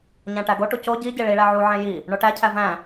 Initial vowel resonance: nasal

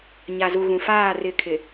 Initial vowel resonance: oral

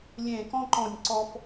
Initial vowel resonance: nasal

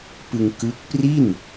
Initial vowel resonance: oral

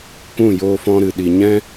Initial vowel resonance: nasal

